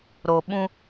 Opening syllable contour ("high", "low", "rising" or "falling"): low